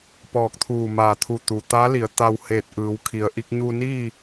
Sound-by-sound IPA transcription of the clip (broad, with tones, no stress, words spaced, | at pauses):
pɔː˧˩k̚t̪ʰuː˧˩ maː˧˩t̪ʰu˧˩t̪u˩ t̪aː˧˥ li˩˧ə̯ t̪a˧wheː˧˩t̚ ʔɯː˩˧wkʰi˩ə̯ʔi˧k̚ ɲuː˧niː˥˨